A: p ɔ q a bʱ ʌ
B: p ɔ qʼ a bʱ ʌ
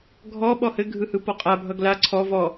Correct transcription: B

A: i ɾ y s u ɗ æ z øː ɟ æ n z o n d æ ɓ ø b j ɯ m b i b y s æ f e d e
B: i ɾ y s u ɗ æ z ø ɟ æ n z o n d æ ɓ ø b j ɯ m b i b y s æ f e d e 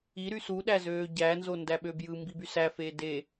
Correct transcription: A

